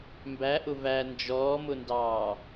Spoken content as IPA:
m b æ ʔ ʊ v æ n d͡ʒ ɔː m ʊ n d ɑː

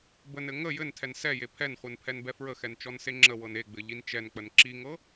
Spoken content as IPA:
b ə n ɘ ŋ ə j ɘ n tʰ ɛ n s ɛ j e pʰ ɛ n χʷ ɘ n pʰ ɛ n b ɛ f ɹ ə x ɛ n t͡ʃ ɔ n s e ŋ͡ǁ ə w ɤ n e ɡ͡b ɘ ʎ i n t͡ʃ ɛ n k͡p ə n ǁ i ŋ ɤ

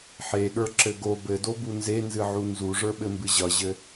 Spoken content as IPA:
ħ e ɠ ə˞ ǁ ɘ ɡ o b ɘ d o b u n z e n z ɨ ʕ u n z u ʐ ə˞ ɓ ɘ m b ɨ ʑ ʌ ʑ ɘ

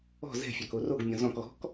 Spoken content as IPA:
ɔ̤ z ɛ̤ fʲ ɑ k o r o ɡ mʲ ɔ̃ z ɔ̃ k ɣ ɔ̤ k

